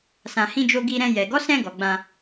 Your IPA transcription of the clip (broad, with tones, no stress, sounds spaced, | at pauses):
s ã˨ h ĩ˧ d͡ʒ o˧ ɡ i˧ ɾ ɛ̃˧ j ɛ˨ ɡ ɔ˨˦ s ɛ̃˧ ɡ ɔ˨ ɡ͡b ã˧